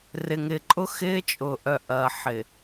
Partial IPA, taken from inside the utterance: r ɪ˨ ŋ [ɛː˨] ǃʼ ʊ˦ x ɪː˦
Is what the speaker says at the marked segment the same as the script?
no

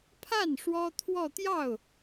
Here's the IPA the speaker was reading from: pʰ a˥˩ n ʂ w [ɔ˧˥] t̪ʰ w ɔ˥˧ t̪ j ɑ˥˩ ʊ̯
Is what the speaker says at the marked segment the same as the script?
no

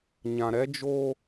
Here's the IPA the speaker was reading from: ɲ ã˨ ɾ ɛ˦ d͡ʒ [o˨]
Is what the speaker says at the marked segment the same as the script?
no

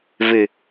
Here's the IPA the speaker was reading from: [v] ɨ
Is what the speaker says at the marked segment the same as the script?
yes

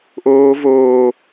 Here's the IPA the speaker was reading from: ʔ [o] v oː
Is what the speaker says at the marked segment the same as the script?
no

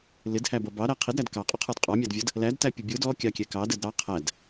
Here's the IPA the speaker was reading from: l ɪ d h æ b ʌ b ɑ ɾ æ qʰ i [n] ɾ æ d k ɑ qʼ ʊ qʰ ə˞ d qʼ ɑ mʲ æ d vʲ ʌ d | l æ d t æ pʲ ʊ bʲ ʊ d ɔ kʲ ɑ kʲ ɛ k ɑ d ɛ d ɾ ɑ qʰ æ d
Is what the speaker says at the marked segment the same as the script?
no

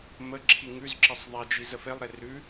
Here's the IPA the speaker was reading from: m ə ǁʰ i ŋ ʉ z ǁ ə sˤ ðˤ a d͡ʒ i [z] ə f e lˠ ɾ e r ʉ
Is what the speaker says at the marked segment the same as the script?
yes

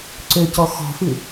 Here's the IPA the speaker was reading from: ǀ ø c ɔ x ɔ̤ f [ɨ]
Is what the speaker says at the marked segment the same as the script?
yes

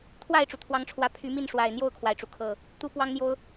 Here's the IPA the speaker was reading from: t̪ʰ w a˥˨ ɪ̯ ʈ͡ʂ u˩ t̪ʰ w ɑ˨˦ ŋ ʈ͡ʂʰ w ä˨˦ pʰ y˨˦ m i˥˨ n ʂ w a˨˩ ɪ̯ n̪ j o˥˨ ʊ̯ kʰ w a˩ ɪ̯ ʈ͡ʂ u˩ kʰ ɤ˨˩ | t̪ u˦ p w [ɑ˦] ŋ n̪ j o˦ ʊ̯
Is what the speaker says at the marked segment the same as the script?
yes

